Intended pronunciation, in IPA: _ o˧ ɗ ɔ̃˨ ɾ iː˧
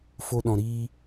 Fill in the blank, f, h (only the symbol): f